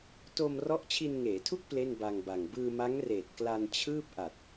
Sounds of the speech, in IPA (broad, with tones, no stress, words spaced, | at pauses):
to˧m rɔ˦˥ʔt͡ɕʰi˧nŋeː˩˦tʰu˥˩k̚ ple˥˩nba˧ŋba˨˩ŋ bɯː˧ma˦˥ŋreː˨˩t̚ kla˧nt͡ɕʰɯː˥˩p̚ ʔa˨˩t̚